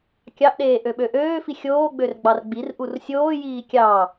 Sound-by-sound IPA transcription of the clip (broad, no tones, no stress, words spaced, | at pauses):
kʲɑʔɗeː ʔøɓøʔøːfi xʲoːɡ͡bør ɡ͡bɑrɡ͡birʔur sʲoːjiː kʲɑ